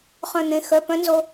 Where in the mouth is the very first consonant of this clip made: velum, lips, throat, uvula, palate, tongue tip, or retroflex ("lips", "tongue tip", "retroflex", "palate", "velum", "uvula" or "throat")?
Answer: uvula